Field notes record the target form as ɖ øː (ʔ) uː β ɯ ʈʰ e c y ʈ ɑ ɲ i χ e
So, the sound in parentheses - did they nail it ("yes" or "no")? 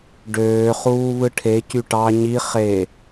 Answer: no